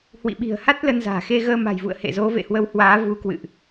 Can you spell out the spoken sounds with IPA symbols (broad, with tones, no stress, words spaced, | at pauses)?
hwḭ˧˨ɓi̤˨˩ə̯ha˦˥t̚ lə˧nza̤ː˨˩xe˧ ɣəː˧ma̤˨˩jvṵ˧˨ə̯ hḛ˧˨zo˨˦vḛ˧˨hwə˨˦w hwaː˨˦vu˨˦kwɨ̰˧˨ʔ